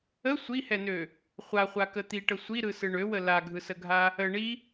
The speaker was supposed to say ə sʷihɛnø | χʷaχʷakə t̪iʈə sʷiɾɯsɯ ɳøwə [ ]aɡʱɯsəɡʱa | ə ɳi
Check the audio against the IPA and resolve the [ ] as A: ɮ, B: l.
B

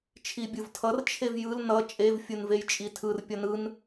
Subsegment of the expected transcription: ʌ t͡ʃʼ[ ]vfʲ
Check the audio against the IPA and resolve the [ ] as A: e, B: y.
A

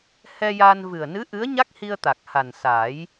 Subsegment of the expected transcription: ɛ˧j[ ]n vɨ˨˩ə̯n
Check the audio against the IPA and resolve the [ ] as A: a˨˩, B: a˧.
B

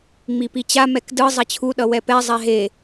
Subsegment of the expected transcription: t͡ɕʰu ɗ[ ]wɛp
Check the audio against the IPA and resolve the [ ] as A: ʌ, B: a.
A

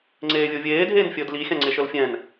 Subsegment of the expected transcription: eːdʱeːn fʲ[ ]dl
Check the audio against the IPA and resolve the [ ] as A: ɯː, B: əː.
B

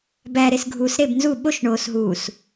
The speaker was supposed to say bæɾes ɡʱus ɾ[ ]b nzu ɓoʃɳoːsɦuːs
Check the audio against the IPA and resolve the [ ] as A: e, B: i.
A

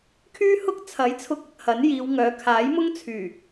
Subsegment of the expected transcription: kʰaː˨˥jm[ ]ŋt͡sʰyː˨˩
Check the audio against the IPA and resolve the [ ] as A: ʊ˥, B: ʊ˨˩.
A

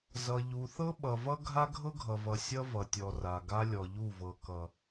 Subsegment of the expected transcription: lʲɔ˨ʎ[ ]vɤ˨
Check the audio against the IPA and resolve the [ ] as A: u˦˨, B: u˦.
A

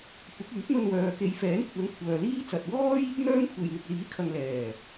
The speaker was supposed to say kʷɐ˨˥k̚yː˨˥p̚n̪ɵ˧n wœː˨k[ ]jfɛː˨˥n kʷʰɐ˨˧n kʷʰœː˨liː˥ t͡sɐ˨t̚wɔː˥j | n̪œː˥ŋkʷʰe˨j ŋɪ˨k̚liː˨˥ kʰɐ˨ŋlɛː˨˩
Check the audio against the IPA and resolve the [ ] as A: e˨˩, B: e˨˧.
B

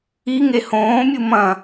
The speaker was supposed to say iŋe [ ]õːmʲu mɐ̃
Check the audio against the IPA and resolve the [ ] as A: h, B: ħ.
A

